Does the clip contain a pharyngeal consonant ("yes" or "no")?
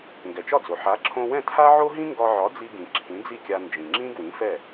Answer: yes